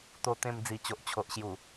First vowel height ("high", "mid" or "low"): mid